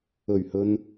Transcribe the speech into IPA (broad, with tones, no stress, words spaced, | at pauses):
ɵ˨˩ɥhɵ˨n